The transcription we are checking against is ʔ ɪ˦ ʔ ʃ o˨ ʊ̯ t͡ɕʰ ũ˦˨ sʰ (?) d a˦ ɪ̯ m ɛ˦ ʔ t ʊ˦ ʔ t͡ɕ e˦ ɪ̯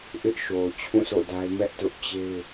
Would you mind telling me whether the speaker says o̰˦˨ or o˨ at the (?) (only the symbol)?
o̰˦˨